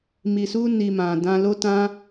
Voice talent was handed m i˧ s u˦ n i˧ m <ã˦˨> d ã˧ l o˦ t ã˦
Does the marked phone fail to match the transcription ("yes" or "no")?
yes